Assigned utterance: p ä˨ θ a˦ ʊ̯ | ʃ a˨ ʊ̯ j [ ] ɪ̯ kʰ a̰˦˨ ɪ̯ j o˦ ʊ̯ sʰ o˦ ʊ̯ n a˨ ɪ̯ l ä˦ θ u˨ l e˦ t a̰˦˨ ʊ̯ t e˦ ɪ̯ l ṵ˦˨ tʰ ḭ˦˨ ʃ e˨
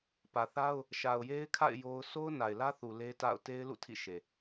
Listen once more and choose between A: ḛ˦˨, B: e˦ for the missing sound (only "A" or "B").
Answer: B